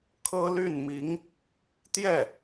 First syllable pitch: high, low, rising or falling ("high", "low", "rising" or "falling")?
high